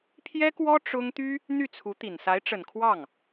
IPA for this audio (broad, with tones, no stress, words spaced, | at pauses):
pʰjɛ˥kwɔ˥ ʈ͡ʂʊ˥ŋ t̪y˥ | n̪y˥˩t͡sʰu˧˥t̪i˨˩n sa˧˥ɪ̯ʈ͡ʂə˨˩nkʰwɑ˥˩ŋ